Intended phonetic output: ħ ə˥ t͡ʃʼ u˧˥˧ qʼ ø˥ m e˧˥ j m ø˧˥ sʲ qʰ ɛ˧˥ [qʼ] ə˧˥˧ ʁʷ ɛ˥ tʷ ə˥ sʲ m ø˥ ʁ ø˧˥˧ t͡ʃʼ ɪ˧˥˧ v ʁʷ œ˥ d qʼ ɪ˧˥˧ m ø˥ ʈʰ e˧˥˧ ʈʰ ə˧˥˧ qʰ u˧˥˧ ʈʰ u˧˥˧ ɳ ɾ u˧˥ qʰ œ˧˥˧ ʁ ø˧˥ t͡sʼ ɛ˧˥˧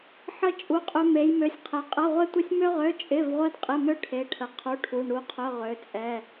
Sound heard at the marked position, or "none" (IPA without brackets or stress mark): qʼ